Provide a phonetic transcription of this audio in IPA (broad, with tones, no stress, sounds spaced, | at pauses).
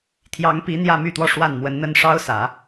t̪ʰ j ɑ˧˥ ŋ p i˧˥ n̪ j ä˥˧ m y˥˧ t̪ w ɔ˥˧ ʂ w a˥˩ n m w ə˧˥ n n̪ ə˥ n ʂ ɑ˥ ʊ̯ s ä˨˩˦